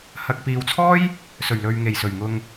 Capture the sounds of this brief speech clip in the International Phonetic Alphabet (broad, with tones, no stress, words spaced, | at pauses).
hɐ˨k̚piː˨wt͡sʰɔː˥j | sɵ˨˩ɥlɵ˨ɥ ŋe˨˩jsɵ˨˩ɥ ŋʊ˧ŋ